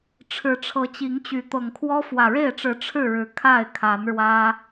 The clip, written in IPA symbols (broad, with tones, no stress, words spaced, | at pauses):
ʈ͡ʂʰɻ̩˨˦ʈ͡ʂʰɤ˨˦t͡ɕi˨˦ŋt͡ɕy˨˦ t̪ɤ˨˩ŋkʰwɔ˦ fwä˨˩ɻe˥˨ɪ̯ʈ͡ʂɻ̩˨˦ ʈ͡ʂʰɻ̩˥˨ɻɻ̩˨˩ kʰa˥˨ɪ̯kʰa˨˦n ɻwä˦